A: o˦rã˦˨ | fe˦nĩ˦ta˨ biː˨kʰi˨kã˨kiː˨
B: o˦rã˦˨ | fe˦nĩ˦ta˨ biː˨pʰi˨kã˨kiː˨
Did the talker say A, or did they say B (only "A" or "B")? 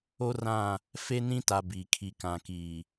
A